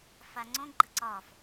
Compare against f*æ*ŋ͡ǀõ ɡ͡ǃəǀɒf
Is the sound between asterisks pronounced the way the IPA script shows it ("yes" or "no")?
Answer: no